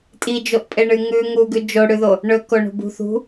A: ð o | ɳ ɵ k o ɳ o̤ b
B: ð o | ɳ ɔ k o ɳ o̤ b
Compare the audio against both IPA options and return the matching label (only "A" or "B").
A